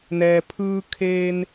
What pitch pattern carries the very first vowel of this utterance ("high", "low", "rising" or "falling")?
low